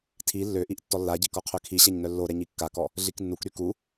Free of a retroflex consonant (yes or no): yes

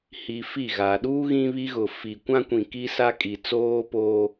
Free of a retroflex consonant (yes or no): yes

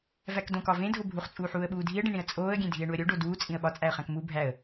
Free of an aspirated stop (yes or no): yes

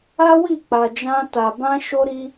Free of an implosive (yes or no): yes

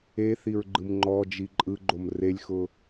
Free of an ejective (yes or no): no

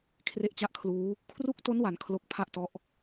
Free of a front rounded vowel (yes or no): yes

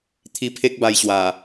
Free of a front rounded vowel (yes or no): yes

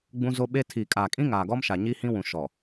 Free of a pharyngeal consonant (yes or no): yes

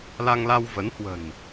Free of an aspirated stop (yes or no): yes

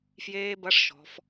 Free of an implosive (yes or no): yes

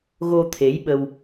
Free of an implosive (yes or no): no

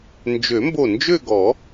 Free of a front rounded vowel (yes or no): no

